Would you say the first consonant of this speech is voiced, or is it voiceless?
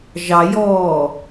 voiced